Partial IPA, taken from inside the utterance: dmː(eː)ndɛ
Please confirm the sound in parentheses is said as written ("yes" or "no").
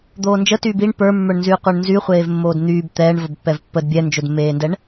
yes